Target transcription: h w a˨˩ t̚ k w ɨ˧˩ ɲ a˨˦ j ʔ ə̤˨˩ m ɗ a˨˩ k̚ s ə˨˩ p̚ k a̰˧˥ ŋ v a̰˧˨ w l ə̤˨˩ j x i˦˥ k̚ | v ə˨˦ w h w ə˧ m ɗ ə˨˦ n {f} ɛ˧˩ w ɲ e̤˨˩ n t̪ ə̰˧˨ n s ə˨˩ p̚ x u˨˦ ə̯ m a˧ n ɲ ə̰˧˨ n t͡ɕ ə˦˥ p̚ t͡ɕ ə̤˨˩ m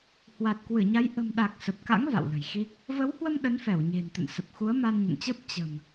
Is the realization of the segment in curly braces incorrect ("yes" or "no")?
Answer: no